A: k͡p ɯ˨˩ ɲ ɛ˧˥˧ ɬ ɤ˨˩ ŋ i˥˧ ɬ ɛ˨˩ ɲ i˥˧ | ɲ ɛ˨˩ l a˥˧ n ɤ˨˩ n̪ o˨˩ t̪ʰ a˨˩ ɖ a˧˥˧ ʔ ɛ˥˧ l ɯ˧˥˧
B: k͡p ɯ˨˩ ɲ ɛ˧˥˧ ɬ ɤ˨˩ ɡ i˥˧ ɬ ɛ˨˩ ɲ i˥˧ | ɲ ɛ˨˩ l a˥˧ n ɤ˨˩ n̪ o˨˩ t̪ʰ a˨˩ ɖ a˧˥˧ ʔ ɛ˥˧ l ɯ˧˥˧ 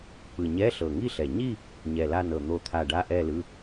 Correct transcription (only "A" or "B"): A